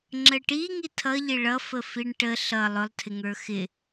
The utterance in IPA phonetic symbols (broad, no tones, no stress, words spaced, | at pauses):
ŋ͡ǁəʈi ŋitʰʌʎɪ ɭʌ fəfiɳʈə ɬʌ lˠʊlˠtʰɪŋə˞ xɪ